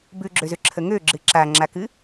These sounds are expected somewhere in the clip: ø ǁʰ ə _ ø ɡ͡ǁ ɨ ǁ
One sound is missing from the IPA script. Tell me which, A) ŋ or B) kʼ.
A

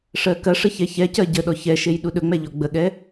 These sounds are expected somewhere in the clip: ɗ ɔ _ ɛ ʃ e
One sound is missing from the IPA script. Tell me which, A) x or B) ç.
B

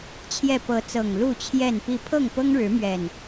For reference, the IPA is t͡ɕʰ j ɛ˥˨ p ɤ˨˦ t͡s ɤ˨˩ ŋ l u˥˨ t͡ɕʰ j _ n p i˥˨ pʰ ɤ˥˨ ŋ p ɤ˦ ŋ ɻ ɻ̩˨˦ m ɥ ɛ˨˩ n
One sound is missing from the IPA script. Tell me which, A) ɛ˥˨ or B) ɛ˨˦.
A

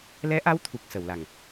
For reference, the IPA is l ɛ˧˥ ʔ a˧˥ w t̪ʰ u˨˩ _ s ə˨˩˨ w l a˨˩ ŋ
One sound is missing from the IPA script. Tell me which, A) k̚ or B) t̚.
A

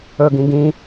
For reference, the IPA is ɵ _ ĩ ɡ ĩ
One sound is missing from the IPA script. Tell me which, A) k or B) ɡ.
B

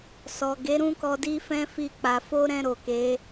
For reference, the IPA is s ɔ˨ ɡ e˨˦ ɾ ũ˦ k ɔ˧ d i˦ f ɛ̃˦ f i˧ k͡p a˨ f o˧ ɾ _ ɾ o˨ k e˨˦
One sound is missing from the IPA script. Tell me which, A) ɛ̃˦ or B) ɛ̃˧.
B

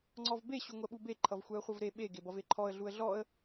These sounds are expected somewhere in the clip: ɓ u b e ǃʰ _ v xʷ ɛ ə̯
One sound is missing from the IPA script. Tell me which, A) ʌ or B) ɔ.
A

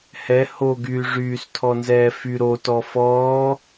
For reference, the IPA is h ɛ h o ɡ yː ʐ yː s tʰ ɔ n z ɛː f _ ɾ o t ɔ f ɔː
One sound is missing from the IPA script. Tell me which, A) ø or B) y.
B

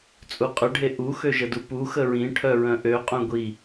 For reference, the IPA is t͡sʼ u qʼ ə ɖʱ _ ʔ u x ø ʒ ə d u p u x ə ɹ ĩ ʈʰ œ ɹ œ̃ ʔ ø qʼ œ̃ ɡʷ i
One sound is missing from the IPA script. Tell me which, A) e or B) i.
A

